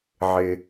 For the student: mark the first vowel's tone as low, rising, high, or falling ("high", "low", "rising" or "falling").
low